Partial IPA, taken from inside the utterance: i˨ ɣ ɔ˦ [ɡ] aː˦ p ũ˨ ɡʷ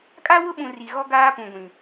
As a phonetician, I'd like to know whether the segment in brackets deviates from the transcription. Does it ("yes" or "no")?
no